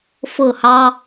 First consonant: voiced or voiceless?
voiceless